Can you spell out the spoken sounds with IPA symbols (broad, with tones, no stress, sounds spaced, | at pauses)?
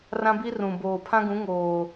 r ã˦ b i˦ r ũ˨ b oː˨ pʰ ã˦ ɡ ũ˨˦ ŋ oː˨